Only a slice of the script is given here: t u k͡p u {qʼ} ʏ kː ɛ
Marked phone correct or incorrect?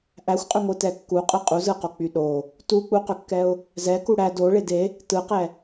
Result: incorrect